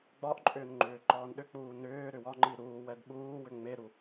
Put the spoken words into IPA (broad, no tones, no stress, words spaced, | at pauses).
ɡ͡bɒʔǃʼʏːn ŋ͡ǃʏːǃɒːnɗʏk͡puː nʏː ɾʏwɒŋ͡ǃi ɾuːwɛd ɓuːwʏ ŋ͡meɾu